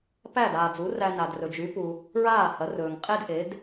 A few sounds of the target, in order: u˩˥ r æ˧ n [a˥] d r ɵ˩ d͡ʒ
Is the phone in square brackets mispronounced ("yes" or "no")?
yes